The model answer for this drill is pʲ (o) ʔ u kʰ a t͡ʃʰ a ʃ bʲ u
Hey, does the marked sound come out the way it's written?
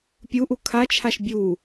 no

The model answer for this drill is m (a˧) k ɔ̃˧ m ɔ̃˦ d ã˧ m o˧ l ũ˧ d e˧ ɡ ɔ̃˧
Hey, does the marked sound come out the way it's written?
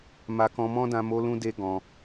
yes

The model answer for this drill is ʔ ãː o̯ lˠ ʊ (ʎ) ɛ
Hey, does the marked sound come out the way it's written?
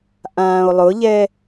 yes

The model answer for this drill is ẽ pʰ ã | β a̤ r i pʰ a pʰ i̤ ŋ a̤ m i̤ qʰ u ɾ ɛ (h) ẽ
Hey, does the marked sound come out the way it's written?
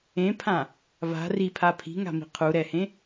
yes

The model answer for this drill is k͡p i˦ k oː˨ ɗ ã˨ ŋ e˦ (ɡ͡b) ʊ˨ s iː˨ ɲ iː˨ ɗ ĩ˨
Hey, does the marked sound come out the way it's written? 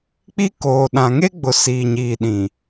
yes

